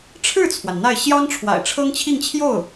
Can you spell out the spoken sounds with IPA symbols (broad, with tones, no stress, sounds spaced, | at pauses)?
ʈ͡ʂʰ ɻ̩˥˩ t͡sʰ w a˩ n n̪ a˥˩ ɪ̯ ɕ j ɑ˥ ŋ ʈ͡ʂʰ w a̰˨˩ ɪ̯ ʈ͡ʂʰ ɤ˥ ŋ t͡ɕʰ i˥˧ ŋ t͡ɕʰ j o˥˩ ʊ̯